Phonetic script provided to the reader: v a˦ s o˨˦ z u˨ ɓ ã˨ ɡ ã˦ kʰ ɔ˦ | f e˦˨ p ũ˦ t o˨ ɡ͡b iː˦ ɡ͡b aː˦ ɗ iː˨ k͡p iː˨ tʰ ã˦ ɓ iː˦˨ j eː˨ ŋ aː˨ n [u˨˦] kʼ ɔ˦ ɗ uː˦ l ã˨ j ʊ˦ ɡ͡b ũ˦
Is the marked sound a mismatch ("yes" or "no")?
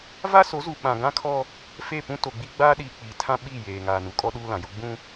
no